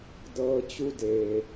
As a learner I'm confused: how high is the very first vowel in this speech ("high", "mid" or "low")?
mid